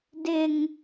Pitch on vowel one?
high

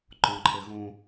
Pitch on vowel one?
high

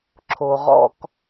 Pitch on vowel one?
low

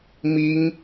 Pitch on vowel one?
high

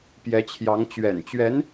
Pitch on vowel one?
rising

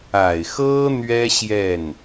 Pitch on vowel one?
low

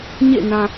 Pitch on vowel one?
falling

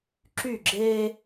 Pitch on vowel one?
falling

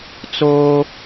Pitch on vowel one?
high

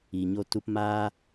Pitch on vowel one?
low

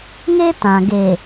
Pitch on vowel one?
high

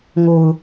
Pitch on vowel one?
low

